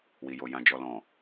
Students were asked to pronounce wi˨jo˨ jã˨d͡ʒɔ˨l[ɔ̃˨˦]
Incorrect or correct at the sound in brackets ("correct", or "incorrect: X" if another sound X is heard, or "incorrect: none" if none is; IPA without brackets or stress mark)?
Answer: incorrect: ɔ̃˨